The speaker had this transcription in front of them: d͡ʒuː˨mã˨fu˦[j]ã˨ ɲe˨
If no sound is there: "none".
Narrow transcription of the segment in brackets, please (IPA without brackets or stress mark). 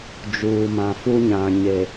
ɲ